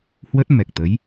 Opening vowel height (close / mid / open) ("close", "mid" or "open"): mid